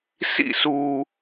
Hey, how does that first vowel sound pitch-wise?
falling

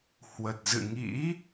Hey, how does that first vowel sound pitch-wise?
low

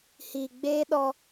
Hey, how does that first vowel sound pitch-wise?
low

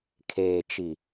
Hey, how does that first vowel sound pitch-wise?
low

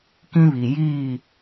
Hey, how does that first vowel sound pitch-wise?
high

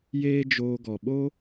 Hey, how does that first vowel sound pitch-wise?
high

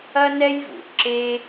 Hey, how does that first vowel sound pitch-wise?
high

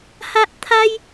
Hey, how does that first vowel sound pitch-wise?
high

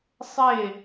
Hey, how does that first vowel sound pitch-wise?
falling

